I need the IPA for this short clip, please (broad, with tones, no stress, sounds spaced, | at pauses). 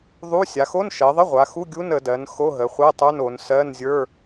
ðˤ u˧˥˧ sʲ a˩˧ x o˧˥˧ n ʃ ɜ˩˧ ðˤ ə˧˥˧ ʁʷ a˩˧ x u˧˥˧ ɡʲ u˧˥˧ n ə˩˧ d ɜ˩˧ n x o˧˥˧ ɦ ə˩˧ χʷ ɜ˧˥˧ tˤ ə˞˧˥˧ n o˩˧ n s ɜ˧˥˧ n zʲ ə˞˧˥˧